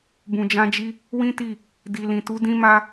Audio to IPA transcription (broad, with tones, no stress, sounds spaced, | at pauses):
b ũ˨ d͡ʒ ã˧ d͡ʒ i˧ | w ĩ˦ t i˦˨ | d i˨ l ĩ˨ t u˨˦ d ĩ˦ m a˦